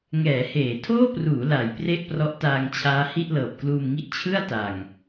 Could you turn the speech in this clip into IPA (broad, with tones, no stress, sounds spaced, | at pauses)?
ŋ ɛː˩˦ h eː˩˦ tʰ oː˥˩ p r uː˩˦ l a˩˦ j p r e˥˩ ʔ p r ɔ˦˥ ʔ t aː˧ ŋ t͡ɕʰ aː˦˥ h i˥˩ ʔ l ɤː˨˩ p̚ k l uː˧ m ŋ i˥˩ ʔ t͡ɕʰ ɯ˥˩ a̯ t a˨˩ ŋ